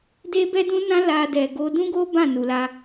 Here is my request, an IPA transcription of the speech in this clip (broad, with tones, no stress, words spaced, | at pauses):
de˦bɛ˦dũ˦nã˦ la˧ dɛ˨ɡo˧ dũ˦ɡo˦ bã˦˨nu˨la˧